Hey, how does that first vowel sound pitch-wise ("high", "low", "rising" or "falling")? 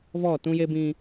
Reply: falling